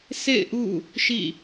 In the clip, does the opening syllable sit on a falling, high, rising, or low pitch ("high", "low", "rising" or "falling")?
falling